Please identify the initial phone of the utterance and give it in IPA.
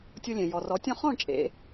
tʲ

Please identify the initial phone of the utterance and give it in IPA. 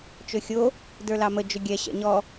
t͡ʃ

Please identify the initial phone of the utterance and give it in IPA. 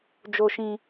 d͡ʒ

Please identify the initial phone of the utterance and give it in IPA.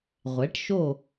ʁʷ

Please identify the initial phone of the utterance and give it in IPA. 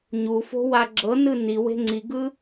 ɲ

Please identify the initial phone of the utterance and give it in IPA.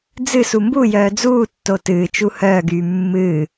d͡z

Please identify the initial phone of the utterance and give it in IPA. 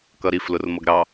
k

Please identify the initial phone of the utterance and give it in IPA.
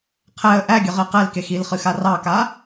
qʰ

